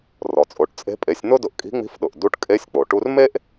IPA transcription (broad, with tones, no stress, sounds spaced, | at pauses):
r ɔ˩ t͡sʼ o˩˧ ʈ t͡sʼ e̤˧˥ pʼ e˩˧ sʲ n̪ ʊ˥ d ʊ˧ ʔ kʼ i̤˧˥ ŋ͡m i̤˧˥ f ɗ ʊ˩ ʔ d u˧˥ ʈ kʼ e˧˥ sʲ k͡p o˩ ʈ u˥ r m e˥ ʔ